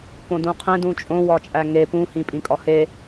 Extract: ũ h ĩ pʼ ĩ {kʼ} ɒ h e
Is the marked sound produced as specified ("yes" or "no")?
yes